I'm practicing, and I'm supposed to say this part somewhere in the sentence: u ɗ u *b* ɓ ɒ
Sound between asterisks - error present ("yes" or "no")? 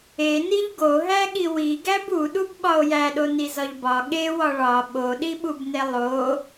no